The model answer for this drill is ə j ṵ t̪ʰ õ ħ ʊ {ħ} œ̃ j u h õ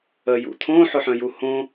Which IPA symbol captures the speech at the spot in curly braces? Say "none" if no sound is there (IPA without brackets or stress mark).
ħ